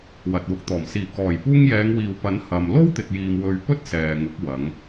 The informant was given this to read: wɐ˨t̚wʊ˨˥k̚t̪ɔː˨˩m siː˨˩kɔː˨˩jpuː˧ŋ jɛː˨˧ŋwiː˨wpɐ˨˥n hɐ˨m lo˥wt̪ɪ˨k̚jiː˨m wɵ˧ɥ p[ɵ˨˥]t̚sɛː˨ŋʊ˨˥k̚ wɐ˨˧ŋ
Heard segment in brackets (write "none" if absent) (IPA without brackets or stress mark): ɵ˥